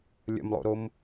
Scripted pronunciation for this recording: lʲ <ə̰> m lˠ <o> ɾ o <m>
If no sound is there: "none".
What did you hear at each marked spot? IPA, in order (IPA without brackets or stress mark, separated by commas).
ə̰, o̰, m